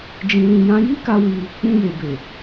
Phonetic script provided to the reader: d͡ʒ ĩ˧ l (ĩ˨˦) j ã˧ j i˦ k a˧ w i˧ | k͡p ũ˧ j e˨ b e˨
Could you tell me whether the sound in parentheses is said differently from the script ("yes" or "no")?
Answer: yes